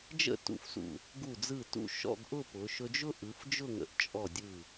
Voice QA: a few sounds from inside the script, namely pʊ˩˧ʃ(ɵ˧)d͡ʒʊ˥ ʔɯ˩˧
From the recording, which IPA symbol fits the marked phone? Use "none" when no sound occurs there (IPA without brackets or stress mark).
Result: ɵ˧